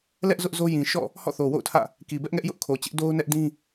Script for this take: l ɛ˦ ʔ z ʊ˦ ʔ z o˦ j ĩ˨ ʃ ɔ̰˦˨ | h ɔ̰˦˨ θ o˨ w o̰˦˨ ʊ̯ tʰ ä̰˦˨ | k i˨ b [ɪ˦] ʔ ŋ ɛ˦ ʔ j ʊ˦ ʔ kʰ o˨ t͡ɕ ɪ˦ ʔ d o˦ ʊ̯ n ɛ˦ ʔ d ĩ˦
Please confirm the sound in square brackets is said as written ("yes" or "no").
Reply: no